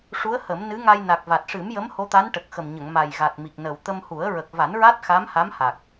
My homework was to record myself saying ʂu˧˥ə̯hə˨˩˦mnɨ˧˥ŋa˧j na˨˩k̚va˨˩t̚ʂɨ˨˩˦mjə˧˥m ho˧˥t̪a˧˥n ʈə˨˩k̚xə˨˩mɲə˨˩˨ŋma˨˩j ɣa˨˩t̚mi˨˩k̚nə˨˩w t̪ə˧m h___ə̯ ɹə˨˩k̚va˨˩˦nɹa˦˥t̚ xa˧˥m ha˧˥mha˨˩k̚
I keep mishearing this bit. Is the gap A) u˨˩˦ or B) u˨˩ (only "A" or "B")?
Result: A